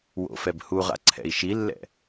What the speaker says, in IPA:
w o̰ f ɛ b h u ʁ a̰ ǀʰ ɛ̰ i̯ ʃ i lː ɛ̰

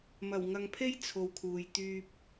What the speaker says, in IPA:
m ɐ˨˩ w ŋ ɐ˨ ŋ pʰ e˥ j t͡sʰ o˨ w kʰ uː˨ j t̪ yː˧ p̚

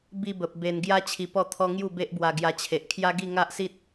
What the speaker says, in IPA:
b i˧ b ə˨ p̚ b e˧ n ɡ j a˦ t͡ɕʰ i˧ p ɔ˥˧ t̪ʰ ɔ˦ ŋ j u˥˧ b e˦ ʔ b w a˧ ɡ j a˧ t͡ɕʰ e˨ ʔ kʰ j a˦ ɡ i˥˧ ŋ a˦ ʔ s i˦ t̚

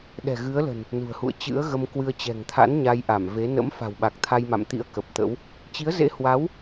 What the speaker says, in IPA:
ɗ ɛ̤˨˩ ɣ ɨ˨˦ ə̯ l ə̤˨˩ n | n ṳ˨˩ ə̯ h ṵ˧˨ ə̯ t͡ɕ ɨ̰˧˥ ə̯ ɣ ə˧ m k w ɨ˧ ə̯ t͡ɕ ɛ̤˨˩ ŋ t̪ʰ a̰˧˥ n ɲ a˧ j ʔ a˧˩ m v e˨˦ n ə̰˧˥ m f a̤˨˩ w ɓ a˨˩ k̚ t̪ʰ a˧ j m a̰˧˨ m t̪ ḭ˧˥ ə̯ k ə˨˩ p̚ t̪ ə̰˧˥ w | t͡ɕ i˨˦ ə̯ z ḛ˧˥ h w a˨˦ w

